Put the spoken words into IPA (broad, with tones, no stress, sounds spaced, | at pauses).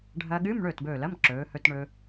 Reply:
ɖʱ ɐː˧ ɠ ɨː˧˥˧ m ɳ ɵː˥˩ t b ɵː˧˩ l ɐ˧˥˧ m ǁ ɵː˩˧ h ɵ˧ t ɳ ɵ˧